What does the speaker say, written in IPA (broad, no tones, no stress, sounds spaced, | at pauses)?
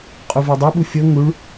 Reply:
qʼ u v e dˤ o ɓ u fʲ ɤ ŋ u ɭ